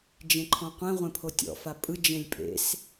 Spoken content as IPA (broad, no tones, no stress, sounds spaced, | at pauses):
d͡ʒ ẽ ǃʰ ɔ̃ qʷ ẽ ʁʷ ẽ pʰ o tʲ ɔ̰ f a pʼ ɯ d͡ʒ ẽ lʲ pʼ ḛ s